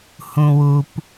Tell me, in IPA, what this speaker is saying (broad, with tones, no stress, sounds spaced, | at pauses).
h ũ˨ w u˨ p